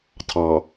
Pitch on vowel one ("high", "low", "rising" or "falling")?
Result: low